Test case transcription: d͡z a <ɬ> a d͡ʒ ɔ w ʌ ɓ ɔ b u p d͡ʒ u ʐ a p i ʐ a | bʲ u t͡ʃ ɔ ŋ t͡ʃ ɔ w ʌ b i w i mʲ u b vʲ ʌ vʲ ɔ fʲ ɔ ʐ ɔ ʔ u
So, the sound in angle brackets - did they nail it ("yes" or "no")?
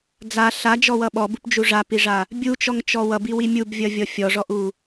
yes